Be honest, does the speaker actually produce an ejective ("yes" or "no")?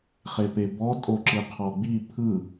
yes